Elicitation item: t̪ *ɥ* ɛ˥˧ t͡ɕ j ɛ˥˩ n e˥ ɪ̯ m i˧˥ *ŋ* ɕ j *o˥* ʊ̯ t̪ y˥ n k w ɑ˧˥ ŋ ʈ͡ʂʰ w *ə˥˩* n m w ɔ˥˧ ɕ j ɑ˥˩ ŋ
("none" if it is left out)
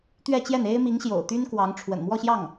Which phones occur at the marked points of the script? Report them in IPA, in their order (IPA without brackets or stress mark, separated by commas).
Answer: ɥ, ŋ, o̰˨˩, ə̰˨˩